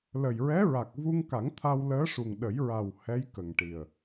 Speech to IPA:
l ə˨˩ j ɹ ɛ˧˥ ɹ a˨˩ k̚ v u˧ ŋ k a˨˩˦ ŋ t̪ʰ a˧ w l əː˧˥ ʂ u˨˩ ŋ ɗ ə˨˩˦ j ɹ a˨˩ w h ɛ˧˥ j k ə˨˩ ŋ ʈ i˨˩ ə̯

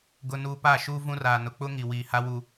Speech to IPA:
ɡ ʊ˦ n uː˦ p a˦˨ ʃ uː˦ v ũ˦ r aː˨ n ʊ˨ k͡p ʊ˦ ŋ i˨ w iː˨ h a˦ w u˦

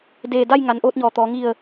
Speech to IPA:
d eː˧˩ d a˥˨ j ŋ a˩˧ n ʔ oː˧ t̚ ɲ ɔː˩ t̪ ɔː˩˧ ŋ i˧˩ ə̯

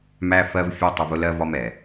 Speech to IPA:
m æ˦ f ɜ˦ v fʲ ɜ˦ tˤ ɪ˧ v ʊ˦ l ɜ˦ v ɒ˦ m ɛ˨

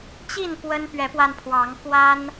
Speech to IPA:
t͡ɕ i˥˨ n p w ə˦ n p ɥ ɛ˨˦ p w a˧ n pʰ w ɑ˨˦ ŋ k w a˦ n

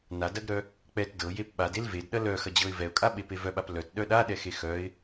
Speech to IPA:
n a d ɐ ɡ ɾ œ | k͡p ɛ t d ɤ j e p ɓ a d e l v e d ɗ ɐ l œ x ɐ d͡ʑ ɤ ɪ̯ v ɛ ʊ̯ kʼ a ɓ e p e v œ ɓ a p l œ t ɗ œ ɗ a ɗ ɛ x e x œ ɪ̯

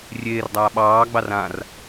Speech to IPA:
rʲ eː r dˤ aː ɓ ɑː ɡ͡b ɑ r ã r

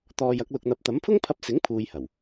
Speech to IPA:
t̪ ɔː˧ j ɐ˨˥ k̚ l ʊ˧ k̚ n̪ ɐ˧ p̚ t̪ ɐ˨˥ m pʰ ʊ˥ ŋ pʰ ɐ˧ p̚ s ɪ˨˥ ŋ pʰ uː˧ j h ɐ˨˩ w

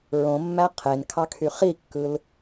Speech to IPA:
ɹ õ mː æ qʰ e n kʰ ɑ kʰ y χ i kː ɯ l

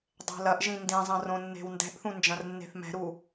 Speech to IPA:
dˤ e̤ l ɐ ʔ ʒ ĩ n d ĩ zˤ ɐ̃ r õ nː e̤ w n d ɛ̤ ʔ θ ũ n d͡ʒ ɐ̃ r nː e̤ θ m ɛ̤ ɾ u

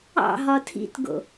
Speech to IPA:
ɑ̰ ɦ ɒ tʰ ḭ t ɡ o̰

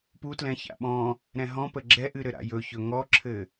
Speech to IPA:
p u t l ɛ̃ ç a̰ ɓ ɔ̃ | ɾ ɛ̃ ɦ ɔ̃ p ə ɡ͡ǁ ɛ ʔ ɨ ɾ ɘ ɾ a̰ j ɵ ç ɵ ŋ ɔ ǁʰ ɘ

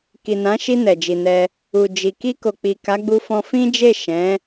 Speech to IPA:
k i˨ n ã˨˦ ʃ i˧ n ɛ˨ d͡ʒ i˨ n ɛ˧ | u˨ d͡ʒ i˨ k i˧ k o˨ k͡p i˨ k a˨˦ ɡ͡b u˧ f ɔ̃˧ f ĩ˦ d͡ʒ e˦˨ ʃ ɛ̃˨˦

